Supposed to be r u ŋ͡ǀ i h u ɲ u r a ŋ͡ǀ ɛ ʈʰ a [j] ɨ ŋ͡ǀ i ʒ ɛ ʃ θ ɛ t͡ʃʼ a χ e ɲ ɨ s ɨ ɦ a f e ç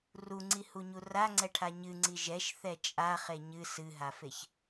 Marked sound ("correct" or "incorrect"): incorrect